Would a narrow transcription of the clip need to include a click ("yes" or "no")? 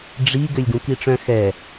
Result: no